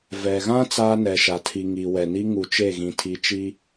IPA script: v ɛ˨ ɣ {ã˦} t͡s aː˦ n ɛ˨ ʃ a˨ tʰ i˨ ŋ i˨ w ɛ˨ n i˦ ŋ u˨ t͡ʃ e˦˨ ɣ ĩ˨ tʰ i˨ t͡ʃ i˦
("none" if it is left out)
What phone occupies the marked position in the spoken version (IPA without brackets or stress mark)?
ã˦